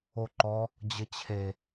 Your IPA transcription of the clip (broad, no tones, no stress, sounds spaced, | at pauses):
o ǃ ɔ | d͡ʑ ɘ t͡ɕʰ e